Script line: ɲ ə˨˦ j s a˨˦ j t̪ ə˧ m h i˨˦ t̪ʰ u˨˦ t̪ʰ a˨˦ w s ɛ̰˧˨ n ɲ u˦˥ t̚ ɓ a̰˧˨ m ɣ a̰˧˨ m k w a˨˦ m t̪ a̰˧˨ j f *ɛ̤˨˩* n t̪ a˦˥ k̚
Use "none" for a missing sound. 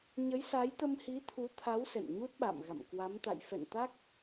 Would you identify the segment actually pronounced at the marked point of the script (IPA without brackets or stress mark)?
ɛ̰˧˨